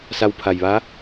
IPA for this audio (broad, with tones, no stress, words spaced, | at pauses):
sa˧wpʰa˩jʋa˧˥